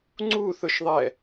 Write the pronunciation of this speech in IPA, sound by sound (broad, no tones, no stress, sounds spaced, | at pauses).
ŋ͡ǀ u θ ʊ ʃ ðˤ ɛ